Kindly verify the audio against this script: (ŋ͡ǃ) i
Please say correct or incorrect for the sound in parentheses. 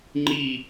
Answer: correct